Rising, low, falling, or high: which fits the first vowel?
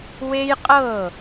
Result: high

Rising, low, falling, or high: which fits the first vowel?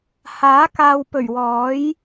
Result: rising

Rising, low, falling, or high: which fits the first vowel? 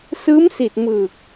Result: rising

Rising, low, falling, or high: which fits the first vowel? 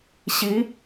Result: rising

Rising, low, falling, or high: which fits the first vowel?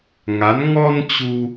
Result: rising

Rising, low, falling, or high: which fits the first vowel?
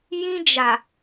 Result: high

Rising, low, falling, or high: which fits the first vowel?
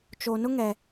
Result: low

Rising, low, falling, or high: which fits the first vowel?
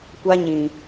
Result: high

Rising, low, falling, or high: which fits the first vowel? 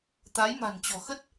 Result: rising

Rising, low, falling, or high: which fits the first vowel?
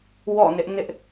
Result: falling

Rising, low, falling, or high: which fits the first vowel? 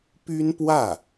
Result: high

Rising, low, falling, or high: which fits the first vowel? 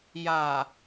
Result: low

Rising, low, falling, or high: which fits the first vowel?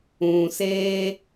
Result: low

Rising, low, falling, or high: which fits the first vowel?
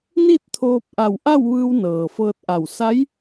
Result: falling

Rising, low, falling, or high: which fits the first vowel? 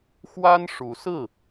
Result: high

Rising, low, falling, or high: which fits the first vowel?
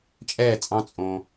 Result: falling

